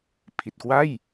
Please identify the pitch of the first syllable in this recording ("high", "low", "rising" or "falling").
low